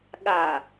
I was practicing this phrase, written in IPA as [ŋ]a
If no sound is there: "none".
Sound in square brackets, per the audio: ɠ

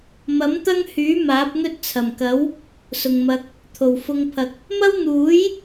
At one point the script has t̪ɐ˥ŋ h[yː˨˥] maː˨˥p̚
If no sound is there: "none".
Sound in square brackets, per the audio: yː˨˥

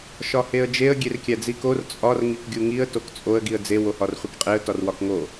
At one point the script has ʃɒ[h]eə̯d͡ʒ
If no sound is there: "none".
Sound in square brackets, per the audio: h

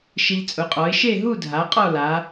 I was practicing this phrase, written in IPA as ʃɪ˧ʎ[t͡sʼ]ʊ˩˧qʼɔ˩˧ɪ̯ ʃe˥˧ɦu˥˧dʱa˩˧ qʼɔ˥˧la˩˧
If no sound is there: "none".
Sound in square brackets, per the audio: t͡sʼ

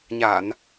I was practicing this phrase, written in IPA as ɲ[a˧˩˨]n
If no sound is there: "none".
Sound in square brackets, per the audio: a˧˩˨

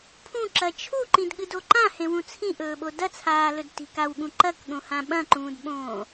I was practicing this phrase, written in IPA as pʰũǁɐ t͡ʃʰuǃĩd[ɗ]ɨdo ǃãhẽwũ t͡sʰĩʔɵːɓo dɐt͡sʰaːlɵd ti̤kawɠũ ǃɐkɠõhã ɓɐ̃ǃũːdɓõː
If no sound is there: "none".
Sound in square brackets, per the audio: ɠ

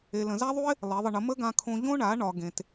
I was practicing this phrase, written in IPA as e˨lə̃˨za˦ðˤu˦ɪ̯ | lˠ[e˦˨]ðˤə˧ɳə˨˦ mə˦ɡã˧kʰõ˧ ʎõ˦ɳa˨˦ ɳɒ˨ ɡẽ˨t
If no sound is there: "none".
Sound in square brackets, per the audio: e˨˦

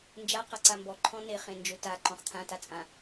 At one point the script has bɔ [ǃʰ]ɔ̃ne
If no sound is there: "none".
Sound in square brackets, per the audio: ǃʰ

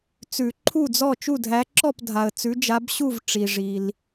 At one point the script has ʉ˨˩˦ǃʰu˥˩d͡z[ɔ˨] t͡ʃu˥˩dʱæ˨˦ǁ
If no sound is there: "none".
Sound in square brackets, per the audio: ɔ˥˩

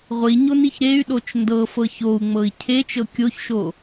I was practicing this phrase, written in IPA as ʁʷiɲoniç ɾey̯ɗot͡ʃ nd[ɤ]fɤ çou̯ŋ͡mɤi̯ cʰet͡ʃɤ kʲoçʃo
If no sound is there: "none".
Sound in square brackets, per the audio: ɤ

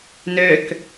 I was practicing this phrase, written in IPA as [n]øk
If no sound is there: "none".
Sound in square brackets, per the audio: n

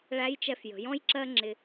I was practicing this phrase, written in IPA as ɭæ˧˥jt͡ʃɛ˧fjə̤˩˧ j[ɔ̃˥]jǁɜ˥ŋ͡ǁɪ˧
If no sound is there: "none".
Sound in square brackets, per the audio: ɔ̃˥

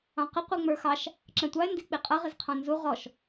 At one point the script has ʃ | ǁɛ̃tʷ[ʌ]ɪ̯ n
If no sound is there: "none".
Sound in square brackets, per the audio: ɑ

